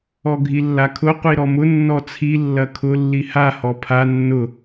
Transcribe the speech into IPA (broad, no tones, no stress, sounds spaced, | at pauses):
ɔ ɡʱ i lː a kʰ ʊ qʷ i ɾ ɔ m ʊ nː ɔ t͡sʰ i lː ɐ kʰ ʊ lː i h a h ɔ pʰ a nː ʊ